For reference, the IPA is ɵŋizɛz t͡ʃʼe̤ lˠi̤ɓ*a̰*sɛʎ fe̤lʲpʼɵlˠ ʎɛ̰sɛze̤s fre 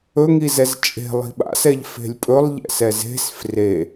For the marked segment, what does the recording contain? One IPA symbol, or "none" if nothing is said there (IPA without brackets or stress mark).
a̰